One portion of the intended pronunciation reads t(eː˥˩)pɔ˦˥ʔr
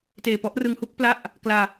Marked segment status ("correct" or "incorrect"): incorrect